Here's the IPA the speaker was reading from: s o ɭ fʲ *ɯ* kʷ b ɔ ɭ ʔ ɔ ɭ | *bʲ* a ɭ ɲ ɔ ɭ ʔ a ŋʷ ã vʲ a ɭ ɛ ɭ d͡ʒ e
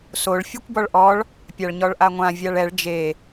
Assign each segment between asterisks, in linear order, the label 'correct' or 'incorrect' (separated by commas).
correct, incorrect